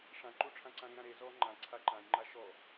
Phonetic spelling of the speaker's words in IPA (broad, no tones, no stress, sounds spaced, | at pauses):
ʂ ã ǃ u ʈ͡ʂʰ ã ǀ ã ɾ ĩ ɾ ã ɾ e z ɔ ŋ͡ǃ ã ǀʰ a ǃ ã j ŋ͡ǃ a ʃ ɔ